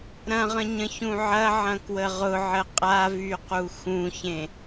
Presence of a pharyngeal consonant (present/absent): present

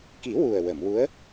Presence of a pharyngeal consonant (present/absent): absent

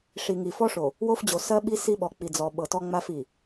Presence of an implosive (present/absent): present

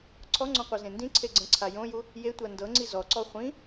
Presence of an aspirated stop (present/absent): present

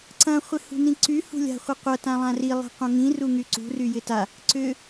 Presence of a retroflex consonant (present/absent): absent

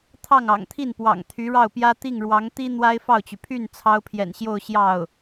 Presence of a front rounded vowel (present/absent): present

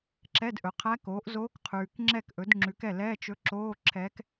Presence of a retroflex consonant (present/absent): absent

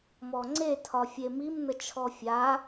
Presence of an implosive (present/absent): absent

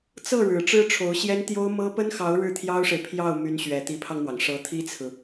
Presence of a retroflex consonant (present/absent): present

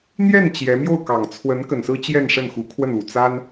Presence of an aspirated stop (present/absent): present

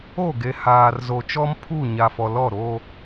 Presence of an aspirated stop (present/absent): present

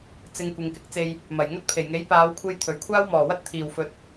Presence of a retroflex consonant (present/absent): absent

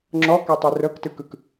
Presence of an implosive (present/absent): absent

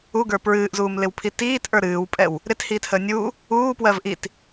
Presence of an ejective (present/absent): present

